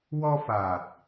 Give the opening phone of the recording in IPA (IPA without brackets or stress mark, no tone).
w